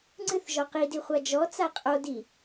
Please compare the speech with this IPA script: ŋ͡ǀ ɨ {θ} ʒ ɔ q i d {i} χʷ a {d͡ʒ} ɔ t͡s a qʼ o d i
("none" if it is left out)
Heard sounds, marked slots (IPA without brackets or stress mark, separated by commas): θ, i, d͡ʒ